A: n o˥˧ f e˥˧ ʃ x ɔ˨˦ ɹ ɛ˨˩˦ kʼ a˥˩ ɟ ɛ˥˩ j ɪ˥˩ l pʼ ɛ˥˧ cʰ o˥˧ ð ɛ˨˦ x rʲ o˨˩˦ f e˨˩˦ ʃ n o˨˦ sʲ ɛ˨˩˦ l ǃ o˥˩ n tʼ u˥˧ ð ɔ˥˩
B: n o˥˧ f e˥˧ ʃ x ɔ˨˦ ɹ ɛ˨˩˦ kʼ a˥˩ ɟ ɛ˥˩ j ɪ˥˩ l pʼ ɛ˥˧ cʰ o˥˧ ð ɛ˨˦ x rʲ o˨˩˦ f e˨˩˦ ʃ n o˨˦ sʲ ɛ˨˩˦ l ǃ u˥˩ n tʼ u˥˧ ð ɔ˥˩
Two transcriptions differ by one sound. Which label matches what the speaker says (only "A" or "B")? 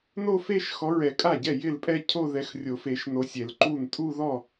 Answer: B